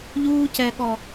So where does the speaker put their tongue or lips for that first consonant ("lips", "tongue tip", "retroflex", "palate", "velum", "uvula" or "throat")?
palate